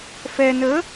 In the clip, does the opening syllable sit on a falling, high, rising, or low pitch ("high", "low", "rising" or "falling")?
low